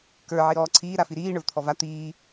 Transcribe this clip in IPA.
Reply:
k ə˞ ʕ i ɾ ɔː ǀʰ iː ɾ a f i ɾ iː ɳ ə˞ v t̪ʰ ɔ v a t̪ iː

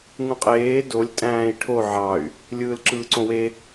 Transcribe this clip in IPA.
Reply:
ŋ ũ qʼ eː d o lʲ tʼ æ̃ː i̯ ʈʰ o ʕ ɑ y̯ | lʲ ɯː l ǁ ɯː ǀ õ w e

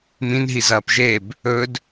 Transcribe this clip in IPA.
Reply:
m ĩ n ɦ i z ɐː p ʒ e b | ɵ d

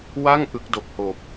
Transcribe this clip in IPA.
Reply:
w a˥˩ ŋ ʔ ɯ˦˥ k̚ d o˨˩ k̚ h oː˨˩ p̚

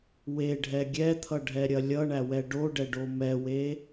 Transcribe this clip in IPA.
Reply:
w e ɖʱ ɛ ɡʲ ɛ t̪ʰ ʌ ɖʱ ɛ ɾʲ ɐ lʲ ʌ ɳ æ w ɛ ɖ o ɖ ɛ ɖ o m ɛ w e

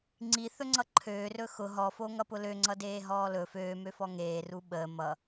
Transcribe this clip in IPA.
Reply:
ŋ͡ǀ i θ ɵ ŋ͡ǀ ʌ ǃʰ øː r ɵ x ʊ ɦ ɔ f o ŋ ʌ p ʊ l ø ŋ͡ǀ ʌ d eː ɦ ɔː l ɵ f øː m ø f ɔ ŋ eː r u ɓ əː m ʌ

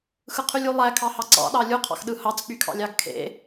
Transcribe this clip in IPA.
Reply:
x ɯ qʰ y lʲ u lˠ æ kʰ ɑ h ɑ ǀ ɑ̰ ɗ ɑ lʲ u qʰ ɑ̰ x ɗ ɯ h ɑ t͡s k͡p y kʰ ɑ̰ lʲ ɑ ɡ kʰ ḛ

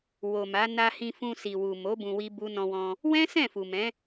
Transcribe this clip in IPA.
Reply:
w o˨ m a˨˦ n a˧ h ĩ˧ f ũ˧ s i˨ w u˨ m o˨˦ b ũ˧ w i˦ b u˦ n ɔ̃˧ w ɔ̃˧ | w ɛ̃˦ s ɛ̃˦˨ f u˨ m ɛ̃˨˦

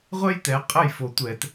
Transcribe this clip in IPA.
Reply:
ʁʷ ɛ˥ j t ɛ˩˥ qʼ ə˥˩ j f o˨˩ tʷ ɛ˧˩˧ t

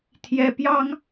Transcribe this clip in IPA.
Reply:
t̪ʰ j ɛ˥ p j ɑ˥ ŋ

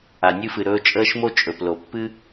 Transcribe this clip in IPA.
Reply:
a˨ nʲ ɨ˧ f ɨ˨ ɾ ɵː˧ t͡ʃʼ əː˧ ʃ m o˧ t͡ʃʼ ɵ˨ p l o˨ pː ɨ˦

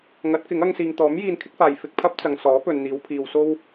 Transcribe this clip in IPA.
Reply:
ŋ ɐ˨˥ t̚ k ɪ˨˥ ŋ ɐ˧ ŋ s iː˨ ŋ t̪ ɔː˨˥ m j iː˧ n kʰ ɪ˥ k̚ f aː˨ j f ɪ˧ k̚ pʰ ɐ˥ p̚ t͡s ɐ˨ ŋ s ɔː˨˥ p ɵ˨ n n̪ iː˨˧ w pʰ iː˨ w s o˥ w

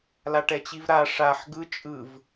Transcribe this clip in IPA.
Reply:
l a ʈ ɛ t͡ɕ i v ɾ a ʂ a ħ ɡ ɯ t͡ʃʼ ɯ v

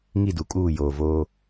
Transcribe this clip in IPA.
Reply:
ŋ i˦˨ d u˨ kʼ uː˦˨ j oː˨ v oː˦

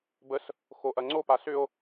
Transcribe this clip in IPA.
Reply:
b ə s | x o ʔ ɐ ŋ͡ǀ o p a s ʏ o̯

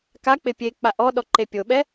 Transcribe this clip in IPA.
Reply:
k a k͡p ɪ pʲ e k͡p a ʔ ɔ ɗ ɔ ǃ e pʲ o ɓ ɛ

